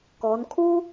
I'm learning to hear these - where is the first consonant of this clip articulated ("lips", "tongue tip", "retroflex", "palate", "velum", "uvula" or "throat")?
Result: velum